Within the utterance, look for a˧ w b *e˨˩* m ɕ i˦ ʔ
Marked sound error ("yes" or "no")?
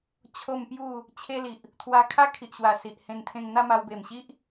no